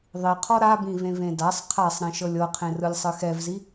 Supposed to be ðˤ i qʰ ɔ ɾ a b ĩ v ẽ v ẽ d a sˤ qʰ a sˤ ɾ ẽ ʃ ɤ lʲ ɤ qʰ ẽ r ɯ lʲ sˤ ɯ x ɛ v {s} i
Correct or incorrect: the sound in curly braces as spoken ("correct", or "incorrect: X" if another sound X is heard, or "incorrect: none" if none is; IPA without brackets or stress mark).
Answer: incorrect: z